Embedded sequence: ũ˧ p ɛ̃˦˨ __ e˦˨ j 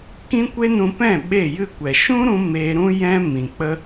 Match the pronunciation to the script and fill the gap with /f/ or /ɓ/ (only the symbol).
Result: ɓ